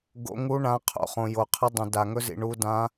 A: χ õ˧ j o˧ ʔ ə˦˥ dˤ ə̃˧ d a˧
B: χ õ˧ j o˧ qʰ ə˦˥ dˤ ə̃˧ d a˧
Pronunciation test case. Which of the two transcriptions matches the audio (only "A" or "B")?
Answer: B